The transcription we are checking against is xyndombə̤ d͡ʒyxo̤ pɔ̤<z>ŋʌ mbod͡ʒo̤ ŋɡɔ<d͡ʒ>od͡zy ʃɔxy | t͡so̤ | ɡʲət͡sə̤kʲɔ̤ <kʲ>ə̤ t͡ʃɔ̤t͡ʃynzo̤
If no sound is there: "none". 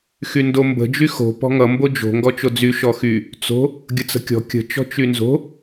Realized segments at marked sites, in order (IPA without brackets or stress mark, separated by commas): none, t͡ʃ, kʲ